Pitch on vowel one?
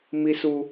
high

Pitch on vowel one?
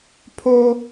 high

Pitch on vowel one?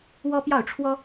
high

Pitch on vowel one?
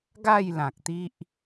falling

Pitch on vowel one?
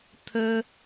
high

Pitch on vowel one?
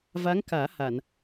rising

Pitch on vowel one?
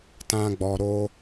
high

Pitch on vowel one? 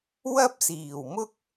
high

